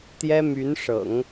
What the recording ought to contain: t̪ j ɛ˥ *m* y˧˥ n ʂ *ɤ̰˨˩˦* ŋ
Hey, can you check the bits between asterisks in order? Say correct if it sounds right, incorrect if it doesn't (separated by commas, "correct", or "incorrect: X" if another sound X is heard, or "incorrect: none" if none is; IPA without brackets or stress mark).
correct, correct